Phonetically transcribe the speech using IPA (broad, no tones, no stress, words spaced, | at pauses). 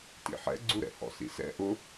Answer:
tḭħɛ̰ɡ͡ǀuɾɛ̰ hɔ̰sḭsɛ̰ ʔʊ